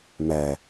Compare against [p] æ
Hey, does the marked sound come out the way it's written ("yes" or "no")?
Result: no